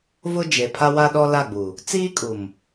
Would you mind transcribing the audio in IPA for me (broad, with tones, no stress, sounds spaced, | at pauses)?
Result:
v ʊ˦ d͡ʒ e˨ pʰ a˦ w a˦ ɗ ɔ˦ l a˦˨ ɡ͡b u˨ | t͡s iː˦ kʼ u˨ m